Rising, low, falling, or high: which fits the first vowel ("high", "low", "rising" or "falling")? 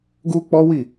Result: high